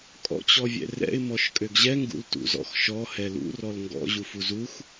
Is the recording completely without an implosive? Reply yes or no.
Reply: yes